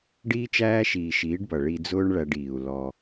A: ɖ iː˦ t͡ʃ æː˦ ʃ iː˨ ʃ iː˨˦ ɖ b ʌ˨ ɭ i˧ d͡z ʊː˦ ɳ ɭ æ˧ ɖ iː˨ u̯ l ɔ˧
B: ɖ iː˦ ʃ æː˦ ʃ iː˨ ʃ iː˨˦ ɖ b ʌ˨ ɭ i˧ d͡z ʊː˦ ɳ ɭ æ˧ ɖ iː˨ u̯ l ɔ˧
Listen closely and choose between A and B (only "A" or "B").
A